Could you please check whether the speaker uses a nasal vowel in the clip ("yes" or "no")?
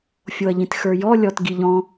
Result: yes